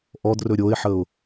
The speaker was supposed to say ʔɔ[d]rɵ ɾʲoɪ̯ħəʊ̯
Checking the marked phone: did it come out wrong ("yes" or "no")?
no